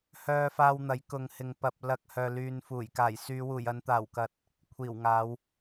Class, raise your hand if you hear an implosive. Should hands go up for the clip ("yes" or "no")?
no